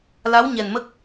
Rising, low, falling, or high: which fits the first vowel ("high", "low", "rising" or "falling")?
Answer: rising